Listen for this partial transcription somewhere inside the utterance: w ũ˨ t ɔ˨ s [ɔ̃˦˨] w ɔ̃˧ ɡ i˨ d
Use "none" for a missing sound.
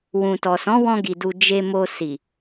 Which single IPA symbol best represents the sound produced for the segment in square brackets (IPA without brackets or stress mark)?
ɔ̃˨˦